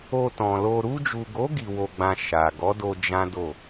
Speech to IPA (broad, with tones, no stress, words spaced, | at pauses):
o˧tɔ̃˨lo˧ ɾu˧d͡ʒu˨ɡo˨˦ ɡi˧wo˧ɡ͡bã˧ ʃa˨ ɡɔ˨˦do˧ d͡ʒã˦do˦˨